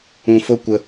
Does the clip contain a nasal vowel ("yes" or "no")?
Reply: yes